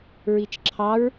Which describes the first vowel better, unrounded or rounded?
unrounded